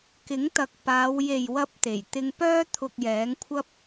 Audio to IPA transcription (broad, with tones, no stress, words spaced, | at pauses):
kɪ˨˥ŋt̪ɐ˨k̚paː˨˧w je˨jwɐ˧p̚t̪e˨˩j t̪ɪ˧ŋpœː˥ t̪ʰʊ˧k̚jɛː˨˥ŋkʷʰɐ˥p̚